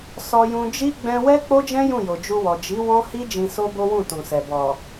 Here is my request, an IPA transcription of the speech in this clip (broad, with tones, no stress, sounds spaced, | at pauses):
s ɔ˧ j ũ˧ d͡ʒ i˦ ɡ͡b ɛ̃˧ w ɛ˦ k͡p o˦ d͡ʒ ɛ̃˦ j ũ˦˨ j o˨ d͡ʒ u˧ w ɔ˨ d͡ʒ i˨˦ w ɔ̃˦ h i˦ d͡ʒ ĩ˧ s o˦ b o˦ w ũ˦˨ t ũ˨ s ɛ˨ b ɔ˨